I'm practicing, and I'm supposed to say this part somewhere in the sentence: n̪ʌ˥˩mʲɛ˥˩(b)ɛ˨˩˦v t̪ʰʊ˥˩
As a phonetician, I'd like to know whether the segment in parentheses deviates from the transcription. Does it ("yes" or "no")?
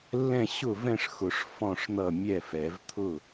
yes